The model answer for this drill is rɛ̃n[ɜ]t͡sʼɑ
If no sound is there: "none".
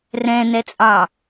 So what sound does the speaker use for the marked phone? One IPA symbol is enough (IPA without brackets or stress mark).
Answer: ɛ